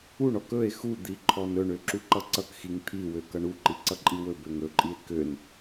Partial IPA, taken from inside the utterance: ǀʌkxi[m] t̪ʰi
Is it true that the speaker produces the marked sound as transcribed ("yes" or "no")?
no